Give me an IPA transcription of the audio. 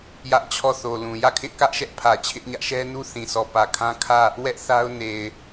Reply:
jä˦ʔ t͡ɕʰɔ˦˨θo˨lũ˨ jä˦˨kʰɪ˦ʔkä˦ʔ ʃɛ˦ʔpʰä˨t͡ɕʰɪ˦ʔɲä˦ʔ ʃɛ˦nu˦ θĩ˨sɔ˨ pä˨kʰã˦kʰä˦˨ | wɛ˦ʔ θa˦ʊ̯ ne˨ɪ̯

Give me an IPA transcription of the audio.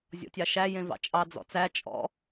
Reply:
zʲɔ̰tʲɑʃæ jẽvɑ̰t͡ʃʼɑ d͡zɔ̰t͡sæ t͡ʃʼɔ̰

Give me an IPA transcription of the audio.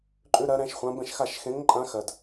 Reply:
ǃʼʉ˥ ɾɜ˧˥ɾɛ̃˧˥ʃχʷã˧˥bɛ̃˥˨ʃ xa˥˨ʃ xẽ˧˥ŋ ǃʼã˧˥xɜ˨d

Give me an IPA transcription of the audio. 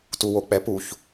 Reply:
tuwok͡pɛpuç

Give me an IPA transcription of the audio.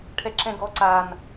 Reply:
ʈʰɛǁɛ̃ɡɔ ǀan

